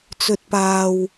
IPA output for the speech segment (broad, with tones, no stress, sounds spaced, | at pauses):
t͡s ɵ˧ t̚ p aː˧ w